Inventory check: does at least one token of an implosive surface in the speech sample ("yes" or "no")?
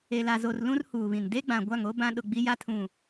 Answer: yes